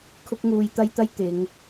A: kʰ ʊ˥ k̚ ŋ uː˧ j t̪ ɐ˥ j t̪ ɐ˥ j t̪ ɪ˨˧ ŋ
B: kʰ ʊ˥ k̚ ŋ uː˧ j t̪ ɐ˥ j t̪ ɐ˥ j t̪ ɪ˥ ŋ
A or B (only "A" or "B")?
A